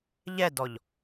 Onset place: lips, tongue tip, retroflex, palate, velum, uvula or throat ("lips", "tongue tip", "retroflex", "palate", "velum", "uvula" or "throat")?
palate